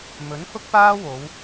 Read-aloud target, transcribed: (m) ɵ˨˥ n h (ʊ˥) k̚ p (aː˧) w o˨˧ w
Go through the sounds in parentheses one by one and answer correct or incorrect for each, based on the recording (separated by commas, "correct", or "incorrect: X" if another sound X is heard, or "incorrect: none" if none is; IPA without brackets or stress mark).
correct, correct, incorrect: aː˥